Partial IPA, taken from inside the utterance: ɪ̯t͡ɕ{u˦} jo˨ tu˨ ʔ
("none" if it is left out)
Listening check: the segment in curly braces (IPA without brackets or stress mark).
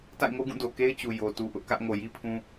u˨